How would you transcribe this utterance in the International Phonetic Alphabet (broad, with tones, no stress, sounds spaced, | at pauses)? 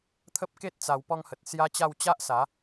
t̪ʰ ə˦ p̚ k e˦ t̚ t͡s a˧ w p ɔ˧ ŋ h ə˨ t̚ s j a˦ t͡ɕ a˥˧ w t͡ɕ a˦ ʔ s a˨˦